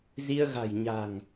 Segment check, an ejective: absent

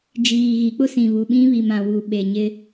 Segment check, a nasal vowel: present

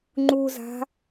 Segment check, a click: present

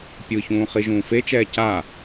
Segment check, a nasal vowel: present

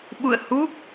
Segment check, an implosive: present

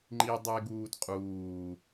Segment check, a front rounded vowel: absent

